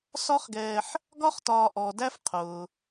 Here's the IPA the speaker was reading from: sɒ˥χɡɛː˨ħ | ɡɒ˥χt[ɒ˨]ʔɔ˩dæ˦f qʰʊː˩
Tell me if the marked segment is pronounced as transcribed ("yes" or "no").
no